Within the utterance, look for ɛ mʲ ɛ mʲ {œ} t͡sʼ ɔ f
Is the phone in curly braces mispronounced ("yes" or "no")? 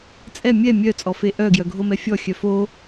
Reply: no